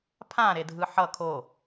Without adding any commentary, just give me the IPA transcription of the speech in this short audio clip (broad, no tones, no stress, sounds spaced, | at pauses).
pʰ ã ɾ e dʱ ɯ ħ ʌ kʰ o